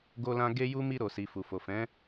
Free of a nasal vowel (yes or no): no